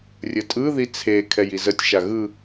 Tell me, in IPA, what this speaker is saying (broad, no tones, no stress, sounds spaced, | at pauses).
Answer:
rʲ ə tʼ ɯ ð i t͡sʰ e kʰ ɛ j i z ə tʲ ʃ a ɣ ɯ